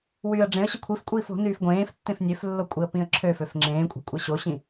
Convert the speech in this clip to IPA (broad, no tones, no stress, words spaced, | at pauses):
wyːə̯ɖ͡ʐẽə̯ɕə kʷʰifkʷʼiːf o̤nyːf ɡʷẽːftːẽf nʲøflːo kʷʼiə̯pĩə̯ǁʰøføf ŋ͡ǁẽːkʷʼe̤ kʷʼeɕoɕĩ